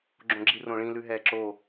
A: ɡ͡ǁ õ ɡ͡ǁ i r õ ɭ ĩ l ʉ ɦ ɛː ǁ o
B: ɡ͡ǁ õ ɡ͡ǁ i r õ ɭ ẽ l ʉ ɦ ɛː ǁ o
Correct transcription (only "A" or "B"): A